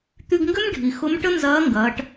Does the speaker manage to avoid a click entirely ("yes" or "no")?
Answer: yes